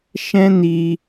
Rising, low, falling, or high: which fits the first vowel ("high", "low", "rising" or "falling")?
high